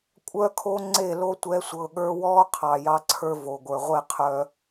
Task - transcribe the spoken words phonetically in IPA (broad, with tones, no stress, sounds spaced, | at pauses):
kʷʼ œ˦ kʰ o˦ ŋ͡ǀ e˦˨ l o˦ tʷ ɛ˨˦ sʷ ɤ˨ ɠ ə˞˦ w ɔː˦ qʰ ɑ˨ j ɑ˦ ǀʰ ə˞˦ v o˨ ɡʷ ə˞˨ ʁʷ e˦ qʰ œ˦